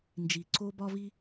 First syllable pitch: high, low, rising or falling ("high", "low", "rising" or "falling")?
low